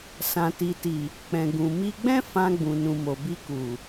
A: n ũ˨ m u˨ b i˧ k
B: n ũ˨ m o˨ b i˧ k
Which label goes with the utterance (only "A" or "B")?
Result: B